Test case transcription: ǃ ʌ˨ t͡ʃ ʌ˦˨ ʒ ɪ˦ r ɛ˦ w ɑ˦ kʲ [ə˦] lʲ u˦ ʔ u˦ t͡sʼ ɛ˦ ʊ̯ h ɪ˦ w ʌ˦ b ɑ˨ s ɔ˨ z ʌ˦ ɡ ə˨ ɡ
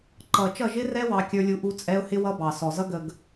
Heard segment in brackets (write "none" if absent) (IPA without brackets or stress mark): ə˞˦